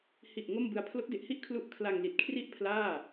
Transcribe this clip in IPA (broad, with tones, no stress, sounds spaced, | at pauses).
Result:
h i˨˩ ʔ ŋ o˥˩ m b ɯ˧ a̯ pʰ l o˦˥ k̚ d e˨˩ ʔ h i˥˩ ʔ kʰ l u˦˥ ʔ kʰ l a˧ ŋ l i˨˩ t̚ kʰ r i˥˩ ʔ pʰ l aː˥˩